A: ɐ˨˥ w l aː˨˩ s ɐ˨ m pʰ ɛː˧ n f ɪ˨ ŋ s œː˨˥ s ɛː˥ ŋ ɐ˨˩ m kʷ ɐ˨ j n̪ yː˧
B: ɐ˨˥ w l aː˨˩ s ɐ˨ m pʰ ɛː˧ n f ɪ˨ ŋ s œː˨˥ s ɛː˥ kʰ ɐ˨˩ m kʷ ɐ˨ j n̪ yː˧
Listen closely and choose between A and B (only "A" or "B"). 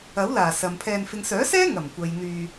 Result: A